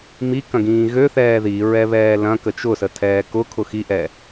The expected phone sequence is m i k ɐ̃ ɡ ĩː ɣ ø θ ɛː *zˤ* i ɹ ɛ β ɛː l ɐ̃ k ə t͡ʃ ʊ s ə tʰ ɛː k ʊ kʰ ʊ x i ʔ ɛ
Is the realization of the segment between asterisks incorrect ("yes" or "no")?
yes